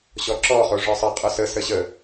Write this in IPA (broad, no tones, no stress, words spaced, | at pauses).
ɕɔǁɔ χoʐɔsˤə qʼʊsə səɕə